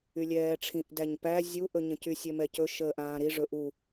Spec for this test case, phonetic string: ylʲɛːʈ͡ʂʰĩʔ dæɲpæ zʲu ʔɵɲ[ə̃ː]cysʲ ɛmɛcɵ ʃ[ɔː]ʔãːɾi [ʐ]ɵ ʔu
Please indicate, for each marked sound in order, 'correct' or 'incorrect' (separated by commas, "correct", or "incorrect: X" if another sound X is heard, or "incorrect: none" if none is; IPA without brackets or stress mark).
incorrect: ə̃, incorrect: əː, correct